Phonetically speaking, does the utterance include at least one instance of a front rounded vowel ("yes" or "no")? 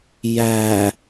no